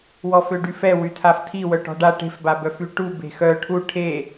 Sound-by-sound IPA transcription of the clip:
w ɔ f ø ɖ y f ɛ w y tʰ a f tʰ i w œ ʈ ɔ̤ ɖ a ʈ e̤ f b a b œ f y ʈ u b e̤ x œ ʈʰ u ʈʰ e

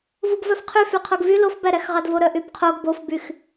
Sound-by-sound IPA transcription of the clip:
v u ɡ v œ f qʰ y f y qʰ o ɡ v y l o f b æ ɾ æ x ʁ ɑ d v o ɾ œ ʔ y b qʰ o ɡ b o f b y x

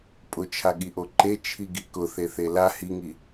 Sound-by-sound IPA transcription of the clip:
pʼ ʊ t͡ʃʰ a ɠ i ʔ o ǃ e t͡ʃʰ i ɡ i k ʊ θ e θ e l a h i ŋ i

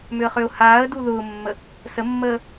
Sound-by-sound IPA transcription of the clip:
m ʏ ə̯ χ ø ʊ̯ h aː ə̯ d u ð ʊː mː ə | s ə mː əː

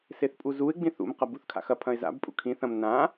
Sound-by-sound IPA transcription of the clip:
s e θ pʼ u z u ɪ̯ ɡ͡b ĩ θ ṵ m q ɐ b u θ kʰ a̰ x ɐ pʰ ɐ̃ ɪ̯ z a̰ b pʼ ṵ kʰ ĩ θ ɐ̃ m n ã

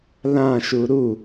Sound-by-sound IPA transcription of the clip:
l ã ʃ u ɾ u

